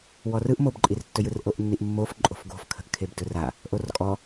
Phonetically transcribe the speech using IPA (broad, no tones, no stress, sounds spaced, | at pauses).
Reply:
w ɔ r ɯ ʔ m o b ǃʼ i r tː ɵ j ɯ r ʔ o ʔ nː i ʔ mː o f ǃʼ o̤ f ɡ o̤ f kʰ ə̤ ʔ kʰ e b d ɵ r a | ʔ o r kʼ ɔ